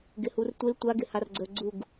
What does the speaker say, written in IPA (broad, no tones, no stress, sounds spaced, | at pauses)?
ɡ ɪ h u r tʷ ɪ l tʷ a ɡ ɪ h a r ɡ͡ǀ ə ɡ͡ǀ u ɡ